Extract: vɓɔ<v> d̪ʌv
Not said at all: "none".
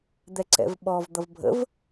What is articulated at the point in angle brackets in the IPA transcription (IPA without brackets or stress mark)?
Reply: v